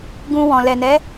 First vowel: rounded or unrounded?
rounded